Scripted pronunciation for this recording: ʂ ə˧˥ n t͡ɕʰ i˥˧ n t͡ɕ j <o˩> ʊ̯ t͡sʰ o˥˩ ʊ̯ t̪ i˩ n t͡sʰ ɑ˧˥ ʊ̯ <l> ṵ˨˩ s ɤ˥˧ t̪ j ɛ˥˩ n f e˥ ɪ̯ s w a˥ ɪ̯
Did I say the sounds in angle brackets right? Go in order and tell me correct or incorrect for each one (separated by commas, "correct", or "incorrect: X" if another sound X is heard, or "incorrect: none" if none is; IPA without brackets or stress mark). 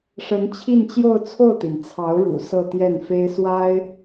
incorrect: o˥˧, incorrect: ɻ